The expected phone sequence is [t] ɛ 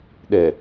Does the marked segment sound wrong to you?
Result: yes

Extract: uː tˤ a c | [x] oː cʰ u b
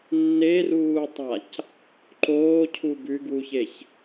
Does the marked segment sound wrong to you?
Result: yes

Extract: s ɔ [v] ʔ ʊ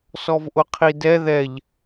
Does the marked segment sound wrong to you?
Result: no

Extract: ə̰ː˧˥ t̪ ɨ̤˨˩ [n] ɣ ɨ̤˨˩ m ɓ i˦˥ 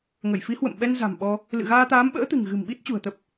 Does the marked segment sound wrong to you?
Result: yes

